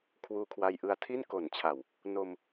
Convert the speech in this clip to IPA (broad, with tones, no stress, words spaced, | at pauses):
kʰwuː˧kʰwa˧jʔɯ˧a̯tʰi˥˩n ko˨˩nt͡ɕʰa˨˩w | no˧m